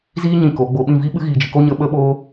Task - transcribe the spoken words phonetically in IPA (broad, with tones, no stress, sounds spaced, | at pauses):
z iː˦ ɲ ĩ˧ k o˨˦ ɡ͡b o˧ ɓ ĩ˦˨ v i˦ ɓ ɨ˦ ɣ iː˧ d͡ʒ ɨ˧ k o˦ ɲ ə˦ ɓ ə˦ ɓ oː˦